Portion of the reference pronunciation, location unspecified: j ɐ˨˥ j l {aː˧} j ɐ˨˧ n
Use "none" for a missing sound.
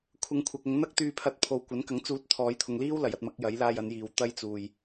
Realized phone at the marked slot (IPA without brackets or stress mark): aː˧